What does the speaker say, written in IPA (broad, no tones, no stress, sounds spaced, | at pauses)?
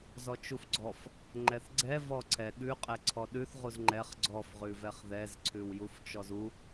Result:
z ɔ t͡ʃ u f ɡ͡ǀ ɔ f | ŋ͡ǃ ɛ θ ɡ͡ǀ ɛ v ɔ ǀʰ ɛ ɠ ʉ qʼ ɛ ǀʰ ɔ ɗ ʉ θ ʁ u z ŋ͡ǃ ɛ χ ɡ͡ǀ ɔ f ʁ ʉ v ɛ χ ð ɛ z ǀʰ ʉ w j u f t͡ʃ ɔ z u